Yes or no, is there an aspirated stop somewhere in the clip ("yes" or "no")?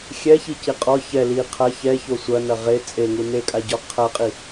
yes